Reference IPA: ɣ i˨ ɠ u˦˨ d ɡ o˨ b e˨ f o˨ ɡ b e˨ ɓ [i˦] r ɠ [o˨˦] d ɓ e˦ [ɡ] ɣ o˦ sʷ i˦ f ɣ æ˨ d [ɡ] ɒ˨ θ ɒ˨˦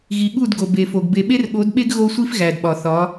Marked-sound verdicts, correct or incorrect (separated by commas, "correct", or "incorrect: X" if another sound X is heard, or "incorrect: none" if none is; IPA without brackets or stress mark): incorrect: e˦, correct, correct, incorrect: ɓ